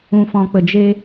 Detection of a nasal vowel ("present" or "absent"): present